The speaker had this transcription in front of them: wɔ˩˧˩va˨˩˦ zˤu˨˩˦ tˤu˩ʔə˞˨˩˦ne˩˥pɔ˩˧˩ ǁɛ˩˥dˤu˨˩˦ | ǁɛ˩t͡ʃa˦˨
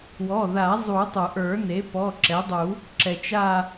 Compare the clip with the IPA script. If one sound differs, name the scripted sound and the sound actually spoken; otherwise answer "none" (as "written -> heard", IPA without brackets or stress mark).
v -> ð